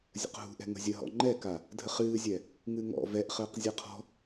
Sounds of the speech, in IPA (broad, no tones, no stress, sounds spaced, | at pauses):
zʲ ə̰ q ɦ ṳ ʔ ɛ̤ ŋ ə̤ zʲ ə ɦ ɔ̰ ŋ͡ǃ ɛ k a | dʱ ə χ ɨː zʲ ɛ | ŋ ɨ ŋ ɔ̰ v ɛ ʔ χ əː q zʲ a qʰ ɔ̤